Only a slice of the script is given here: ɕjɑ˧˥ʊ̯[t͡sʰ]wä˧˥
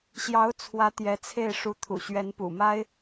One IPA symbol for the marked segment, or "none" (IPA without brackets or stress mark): t͡sʰ